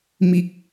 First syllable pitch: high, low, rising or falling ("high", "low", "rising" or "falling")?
low